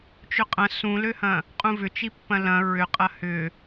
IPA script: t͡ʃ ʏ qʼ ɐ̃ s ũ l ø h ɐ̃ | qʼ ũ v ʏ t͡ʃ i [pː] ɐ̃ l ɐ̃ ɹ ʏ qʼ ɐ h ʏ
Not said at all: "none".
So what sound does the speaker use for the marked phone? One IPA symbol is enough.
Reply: pː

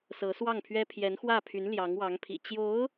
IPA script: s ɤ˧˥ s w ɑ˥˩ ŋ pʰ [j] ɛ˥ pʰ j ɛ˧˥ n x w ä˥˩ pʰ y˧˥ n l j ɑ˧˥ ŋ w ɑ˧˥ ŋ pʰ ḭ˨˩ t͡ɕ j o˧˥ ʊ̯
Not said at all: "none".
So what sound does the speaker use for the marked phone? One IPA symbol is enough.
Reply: ɥ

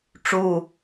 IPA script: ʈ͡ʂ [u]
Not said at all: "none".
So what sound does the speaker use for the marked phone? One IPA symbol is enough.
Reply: u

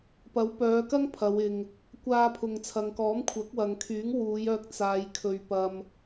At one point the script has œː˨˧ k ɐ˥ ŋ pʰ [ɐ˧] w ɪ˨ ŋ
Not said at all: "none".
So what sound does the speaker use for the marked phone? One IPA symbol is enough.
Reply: ɐ˨˧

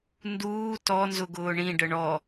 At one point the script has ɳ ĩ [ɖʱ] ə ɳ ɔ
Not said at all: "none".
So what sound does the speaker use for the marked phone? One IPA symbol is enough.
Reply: ɖ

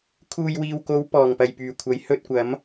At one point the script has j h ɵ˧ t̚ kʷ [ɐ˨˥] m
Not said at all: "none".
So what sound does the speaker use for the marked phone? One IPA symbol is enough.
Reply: ɐ˨˥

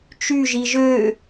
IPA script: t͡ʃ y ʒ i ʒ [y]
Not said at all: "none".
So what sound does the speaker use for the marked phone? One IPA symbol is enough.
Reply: ø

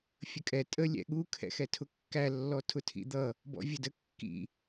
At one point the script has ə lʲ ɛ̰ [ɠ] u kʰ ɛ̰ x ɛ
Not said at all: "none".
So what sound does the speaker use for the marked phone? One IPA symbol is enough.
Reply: ɠ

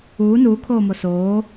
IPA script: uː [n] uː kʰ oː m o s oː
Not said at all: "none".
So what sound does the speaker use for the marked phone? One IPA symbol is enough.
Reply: n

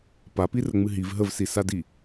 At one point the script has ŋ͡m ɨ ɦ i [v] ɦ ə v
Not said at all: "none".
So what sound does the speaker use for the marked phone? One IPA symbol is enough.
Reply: v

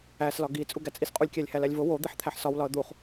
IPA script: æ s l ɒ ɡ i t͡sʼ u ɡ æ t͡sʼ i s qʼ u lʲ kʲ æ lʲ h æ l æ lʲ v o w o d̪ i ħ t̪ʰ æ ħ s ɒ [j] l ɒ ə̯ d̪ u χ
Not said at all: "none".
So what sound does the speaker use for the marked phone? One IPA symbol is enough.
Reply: w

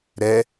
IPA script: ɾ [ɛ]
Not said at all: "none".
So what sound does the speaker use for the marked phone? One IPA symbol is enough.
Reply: ɛ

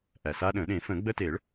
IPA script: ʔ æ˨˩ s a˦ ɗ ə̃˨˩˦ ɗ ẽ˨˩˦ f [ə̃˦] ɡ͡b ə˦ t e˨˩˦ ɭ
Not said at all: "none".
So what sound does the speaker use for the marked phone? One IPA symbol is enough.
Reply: ə̃˨˩˦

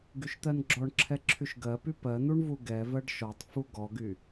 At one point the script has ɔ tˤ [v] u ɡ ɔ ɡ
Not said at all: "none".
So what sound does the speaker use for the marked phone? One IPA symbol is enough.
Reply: f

